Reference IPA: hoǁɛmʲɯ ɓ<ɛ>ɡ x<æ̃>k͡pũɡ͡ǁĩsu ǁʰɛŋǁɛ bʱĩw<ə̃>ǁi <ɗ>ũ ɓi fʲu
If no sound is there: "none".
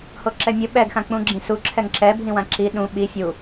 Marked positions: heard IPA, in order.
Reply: ɛ, ã, ã, ɗ

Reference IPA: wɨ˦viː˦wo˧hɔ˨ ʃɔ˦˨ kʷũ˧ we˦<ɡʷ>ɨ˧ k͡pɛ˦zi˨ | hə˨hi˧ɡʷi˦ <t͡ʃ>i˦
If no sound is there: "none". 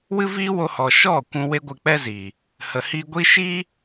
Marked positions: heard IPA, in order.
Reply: ɡʷ, ʃ

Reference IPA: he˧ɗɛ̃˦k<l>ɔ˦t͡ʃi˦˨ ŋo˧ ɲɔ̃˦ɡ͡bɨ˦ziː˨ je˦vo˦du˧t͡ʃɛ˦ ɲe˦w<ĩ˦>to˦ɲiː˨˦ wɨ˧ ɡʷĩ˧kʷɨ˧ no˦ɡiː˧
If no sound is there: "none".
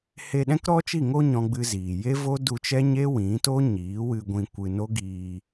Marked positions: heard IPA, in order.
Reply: ɾ, ĩ˨˦

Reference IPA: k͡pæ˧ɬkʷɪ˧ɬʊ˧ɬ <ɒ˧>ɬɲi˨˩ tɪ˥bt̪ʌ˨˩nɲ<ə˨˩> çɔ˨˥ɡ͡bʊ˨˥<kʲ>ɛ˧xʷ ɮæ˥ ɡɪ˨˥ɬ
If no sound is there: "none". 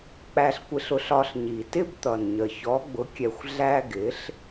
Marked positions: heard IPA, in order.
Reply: ɒ˧, ə˨˩, kʲ

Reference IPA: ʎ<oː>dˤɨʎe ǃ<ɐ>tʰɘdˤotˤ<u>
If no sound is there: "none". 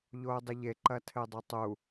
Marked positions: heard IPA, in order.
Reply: oː, ɐ, u

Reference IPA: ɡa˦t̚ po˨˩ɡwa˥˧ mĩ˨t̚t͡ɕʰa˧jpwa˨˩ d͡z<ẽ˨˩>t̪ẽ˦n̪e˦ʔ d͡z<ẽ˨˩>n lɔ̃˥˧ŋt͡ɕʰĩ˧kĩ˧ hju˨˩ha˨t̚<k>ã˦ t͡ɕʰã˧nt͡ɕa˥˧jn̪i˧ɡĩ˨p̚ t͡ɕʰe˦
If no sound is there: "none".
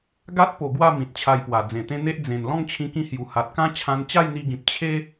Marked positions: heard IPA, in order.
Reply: ẽ˨˩, ẽ˨˩, k

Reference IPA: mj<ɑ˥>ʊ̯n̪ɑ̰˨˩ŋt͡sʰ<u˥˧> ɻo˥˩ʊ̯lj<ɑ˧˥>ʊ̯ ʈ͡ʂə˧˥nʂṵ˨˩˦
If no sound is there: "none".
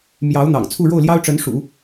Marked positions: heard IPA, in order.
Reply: ɑ˧˥, u˥˧, ɑ˥

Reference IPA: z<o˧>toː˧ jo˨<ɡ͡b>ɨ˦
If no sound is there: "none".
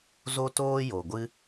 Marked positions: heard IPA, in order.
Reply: o˧, ɡʷ

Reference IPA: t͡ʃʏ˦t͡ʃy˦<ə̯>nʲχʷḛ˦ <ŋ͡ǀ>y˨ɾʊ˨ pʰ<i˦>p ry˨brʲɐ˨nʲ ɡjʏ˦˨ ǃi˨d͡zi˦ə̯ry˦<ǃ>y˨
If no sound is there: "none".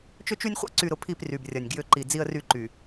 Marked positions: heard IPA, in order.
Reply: none, ǀ, i˦˨, ǃ

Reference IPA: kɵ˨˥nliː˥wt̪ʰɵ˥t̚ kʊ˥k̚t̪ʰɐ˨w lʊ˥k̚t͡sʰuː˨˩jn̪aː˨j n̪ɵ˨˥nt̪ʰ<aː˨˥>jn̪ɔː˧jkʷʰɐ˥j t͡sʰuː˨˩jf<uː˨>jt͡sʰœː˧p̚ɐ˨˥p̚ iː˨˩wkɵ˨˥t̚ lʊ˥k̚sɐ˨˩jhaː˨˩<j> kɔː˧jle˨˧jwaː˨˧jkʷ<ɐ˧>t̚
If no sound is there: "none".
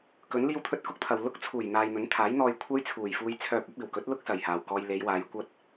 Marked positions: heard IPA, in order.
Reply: aː˨˥, uː˧, w, ɐ˥

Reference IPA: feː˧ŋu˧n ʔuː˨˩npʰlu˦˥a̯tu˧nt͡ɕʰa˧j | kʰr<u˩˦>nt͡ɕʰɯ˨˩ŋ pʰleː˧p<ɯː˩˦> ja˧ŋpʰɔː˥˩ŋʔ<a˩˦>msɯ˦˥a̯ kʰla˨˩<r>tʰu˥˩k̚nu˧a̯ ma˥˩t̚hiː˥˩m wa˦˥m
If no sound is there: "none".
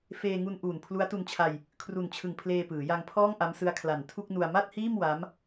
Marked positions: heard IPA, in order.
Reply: u˨˩, ɯː˩˦, a˦˥, n

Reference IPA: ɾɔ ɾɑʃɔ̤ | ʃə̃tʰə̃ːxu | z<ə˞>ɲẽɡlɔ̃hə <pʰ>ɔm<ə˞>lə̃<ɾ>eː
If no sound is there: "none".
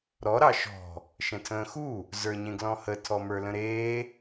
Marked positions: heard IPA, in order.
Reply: ə˞, tʰ, ə˞, ɾ

